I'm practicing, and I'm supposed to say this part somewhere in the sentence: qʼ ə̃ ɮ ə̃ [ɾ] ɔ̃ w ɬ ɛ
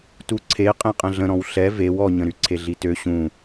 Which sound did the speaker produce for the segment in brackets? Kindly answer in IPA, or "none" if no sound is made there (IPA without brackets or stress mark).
ɾ